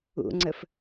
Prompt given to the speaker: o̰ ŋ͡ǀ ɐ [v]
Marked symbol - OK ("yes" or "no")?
no